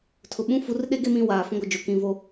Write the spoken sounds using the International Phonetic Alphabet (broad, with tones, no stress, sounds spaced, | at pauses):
tʰ ʊ˨ ɓ ũ˦ f u˨˦ r ɗ e˦ ɡ e˦ m ĩ˦˨ w aː˨ f ũ˦ ɡʷ ɪ˨ d͡ʒ o˨ k ĩ˨ v o˦